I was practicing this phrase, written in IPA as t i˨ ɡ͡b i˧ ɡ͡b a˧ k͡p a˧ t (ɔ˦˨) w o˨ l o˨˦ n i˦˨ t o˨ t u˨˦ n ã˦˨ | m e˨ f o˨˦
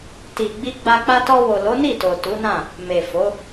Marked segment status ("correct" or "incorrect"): incorrect